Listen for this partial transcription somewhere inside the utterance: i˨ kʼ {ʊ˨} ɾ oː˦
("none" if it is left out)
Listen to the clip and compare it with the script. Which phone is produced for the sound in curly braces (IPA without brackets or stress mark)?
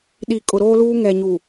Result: ʊ˨